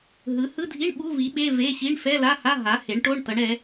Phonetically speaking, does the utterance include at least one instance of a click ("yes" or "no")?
no